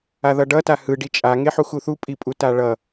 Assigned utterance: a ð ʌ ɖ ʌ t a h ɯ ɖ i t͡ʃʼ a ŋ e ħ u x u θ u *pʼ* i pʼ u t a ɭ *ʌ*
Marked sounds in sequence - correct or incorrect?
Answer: correct, correct

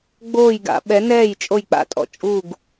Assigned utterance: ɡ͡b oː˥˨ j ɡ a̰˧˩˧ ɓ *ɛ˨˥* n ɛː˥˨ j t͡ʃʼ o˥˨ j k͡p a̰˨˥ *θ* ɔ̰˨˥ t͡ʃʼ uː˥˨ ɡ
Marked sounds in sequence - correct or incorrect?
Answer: correct, incorrect: tʼ

